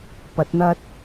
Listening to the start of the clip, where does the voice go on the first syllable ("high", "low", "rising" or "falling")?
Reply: rising